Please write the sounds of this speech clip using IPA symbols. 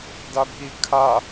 d a bʱ i kʰ a

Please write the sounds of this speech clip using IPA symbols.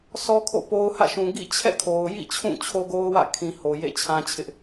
s ɔ˦ kʰ o̰˦˨ p o˦ ʊ̯ h ä̰˦˨ ʃ ũ˨ ɡ ḭ˦˨ t͡ɕʰ ɛ̰˦˨ kʰ o˨ ʊ̯ j ḭ˦˨ t͡ɕʰ ũ˦˨ t͡ɕʰ o˦ ɡ o˦ ʊ̯ w ä̰˦˨ kʰ ĩ˨ h o˨ j ḛ˦˨ t͡ɕʰ ã˦ t͡ɕʰ ɪ˦ ʔ

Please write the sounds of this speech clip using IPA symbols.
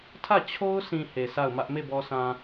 tʰ ä˦˨ t͡ɕʰ o˦ ʊ̯ s ĩ˨ h e˨ s a˦˨ ʊ̯ m ä˦ ʔ m e˦˨ b ɔ˨ s ã˨

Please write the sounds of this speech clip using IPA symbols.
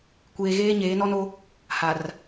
kʷ eː˦ ɣ eː˦ ɲ eː˨˦ n ɔ˦ n o˦ | h a˨ r

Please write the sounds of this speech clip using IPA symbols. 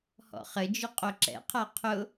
h ɔ̰ χ ɘ d͡ʒ ʊ qʼ o ǁ ɛ̰ qʰ a qʰ ʊ

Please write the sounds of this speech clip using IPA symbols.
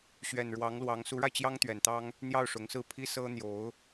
ɕ ɥ ɛ˨˩ n ɻ w ɑ˧˥ ŋ l w ɑ˧˥ ŋ s u˧˥ ɻ a˧ ɪ̯ t͡ɕ j ɑ˥ ŋ t̪ ɥ ɛ˨˩ n t̪ ɑ˥ ŋ | n̪ j ɑ˥˩ ʊ̯ ʂ ʊ˧˥ ŋ s ɹ̩˥˩ pʰ i˥ s ɤ˥ n̪ j o˧˥ ʊ̯

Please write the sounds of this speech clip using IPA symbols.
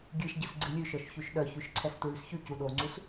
ɡʲ ɨ ʃ ɟ ɯ s ɡ͡ǀ ɨ lʲ ʉ ʃ œ ʃ ç ʉ ʃ ɗ œ ç ʉ ʃ ǀʰ ɛ s t ɹ ʉ s ç ʉ c u ɗ o ŋ͡ǀ u s

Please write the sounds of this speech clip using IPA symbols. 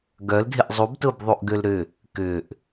ɡ œ l dʱ ɪ ʔ zˤ u b t ʊː b ðˤ u ʔ ɡ ø l ɾ ʏ | k ʏː ʔ

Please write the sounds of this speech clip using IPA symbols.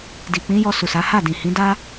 d i˨ k͡p ĩ˨˦ j ɔ˧ s u˨ s a˨˦ h a˦˨ d ĩ˨ h ĩ˨˦ d a˦

